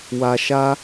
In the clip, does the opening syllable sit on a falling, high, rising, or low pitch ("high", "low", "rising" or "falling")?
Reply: low